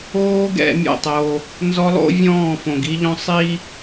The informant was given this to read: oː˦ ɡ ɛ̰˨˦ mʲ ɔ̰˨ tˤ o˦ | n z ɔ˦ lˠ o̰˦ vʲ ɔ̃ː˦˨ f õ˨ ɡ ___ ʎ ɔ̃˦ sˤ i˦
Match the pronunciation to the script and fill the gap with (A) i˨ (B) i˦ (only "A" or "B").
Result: B